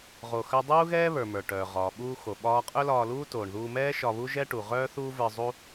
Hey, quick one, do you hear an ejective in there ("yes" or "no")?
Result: yes